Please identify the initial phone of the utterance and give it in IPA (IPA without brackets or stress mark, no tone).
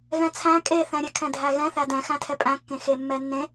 ɣ